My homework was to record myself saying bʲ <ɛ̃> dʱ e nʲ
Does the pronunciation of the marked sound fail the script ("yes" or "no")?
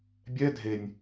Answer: yes